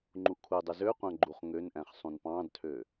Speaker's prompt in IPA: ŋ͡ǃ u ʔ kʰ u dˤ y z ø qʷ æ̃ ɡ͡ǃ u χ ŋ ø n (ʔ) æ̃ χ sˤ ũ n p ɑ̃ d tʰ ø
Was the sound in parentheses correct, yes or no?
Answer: yes